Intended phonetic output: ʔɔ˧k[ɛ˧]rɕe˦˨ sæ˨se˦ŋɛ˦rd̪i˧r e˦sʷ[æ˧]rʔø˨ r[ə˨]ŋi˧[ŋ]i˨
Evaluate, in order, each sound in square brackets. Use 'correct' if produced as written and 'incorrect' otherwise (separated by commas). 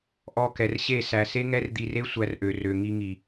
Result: incorrect, correct, incorrect, correct